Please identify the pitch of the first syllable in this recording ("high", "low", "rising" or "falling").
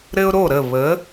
high